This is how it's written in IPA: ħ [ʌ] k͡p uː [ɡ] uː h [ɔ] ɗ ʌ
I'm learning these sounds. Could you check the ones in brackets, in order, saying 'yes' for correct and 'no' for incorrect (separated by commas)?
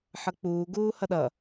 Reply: yes, yes, no